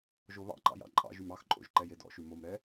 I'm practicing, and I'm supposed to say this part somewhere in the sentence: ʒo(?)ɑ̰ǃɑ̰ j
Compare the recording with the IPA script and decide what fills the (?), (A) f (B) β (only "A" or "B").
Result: B